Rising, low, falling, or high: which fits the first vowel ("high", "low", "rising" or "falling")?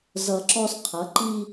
low